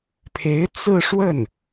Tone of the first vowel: rising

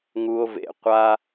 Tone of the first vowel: high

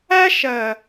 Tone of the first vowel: high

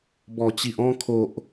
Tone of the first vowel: low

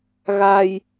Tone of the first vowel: low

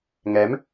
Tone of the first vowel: rising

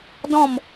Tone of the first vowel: falling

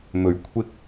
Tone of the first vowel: low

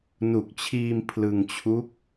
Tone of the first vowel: low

